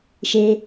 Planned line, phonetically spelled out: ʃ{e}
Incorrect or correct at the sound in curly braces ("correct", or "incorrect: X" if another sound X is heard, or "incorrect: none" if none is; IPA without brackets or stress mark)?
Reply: correct